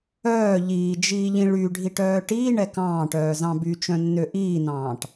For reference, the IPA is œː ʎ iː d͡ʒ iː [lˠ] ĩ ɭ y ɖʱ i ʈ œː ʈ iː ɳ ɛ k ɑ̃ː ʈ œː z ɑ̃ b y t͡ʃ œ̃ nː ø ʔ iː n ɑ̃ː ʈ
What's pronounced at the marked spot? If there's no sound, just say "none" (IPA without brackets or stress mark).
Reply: ʎ